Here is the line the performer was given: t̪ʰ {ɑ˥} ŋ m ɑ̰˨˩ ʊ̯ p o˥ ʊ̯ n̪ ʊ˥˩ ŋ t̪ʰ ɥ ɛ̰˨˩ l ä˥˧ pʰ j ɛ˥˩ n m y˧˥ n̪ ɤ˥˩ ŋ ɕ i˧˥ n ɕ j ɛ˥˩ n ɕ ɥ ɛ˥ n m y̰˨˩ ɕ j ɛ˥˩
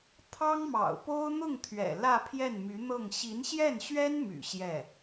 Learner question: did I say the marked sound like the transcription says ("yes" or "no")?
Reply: yes